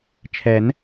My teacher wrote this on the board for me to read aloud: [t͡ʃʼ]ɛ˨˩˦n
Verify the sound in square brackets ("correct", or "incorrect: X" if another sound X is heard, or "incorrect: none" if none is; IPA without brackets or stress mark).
incorrect: t͡ʃʰ